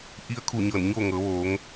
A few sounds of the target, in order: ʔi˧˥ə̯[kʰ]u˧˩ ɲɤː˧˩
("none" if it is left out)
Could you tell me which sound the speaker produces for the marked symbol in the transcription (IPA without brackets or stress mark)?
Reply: kʰ